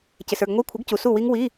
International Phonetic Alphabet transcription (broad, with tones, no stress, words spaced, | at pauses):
cɪ˨sə˞˥˨ɡŋʷi˧˥˧ kʷʰɪ˨˥ɡcu˨ su˥˨wi˦˥ŋ wi˧˥˧